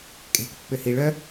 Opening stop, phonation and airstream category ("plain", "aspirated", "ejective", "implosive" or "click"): ejective